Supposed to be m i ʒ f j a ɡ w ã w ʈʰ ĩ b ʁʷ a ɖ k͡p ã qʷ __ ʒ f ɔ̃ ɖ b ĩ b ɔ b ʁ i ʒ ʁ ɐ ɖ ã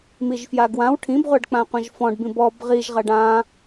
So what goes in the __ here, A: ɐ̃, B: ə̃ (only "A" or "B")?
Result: A